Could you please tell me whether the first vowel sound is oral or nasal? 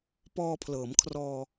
oral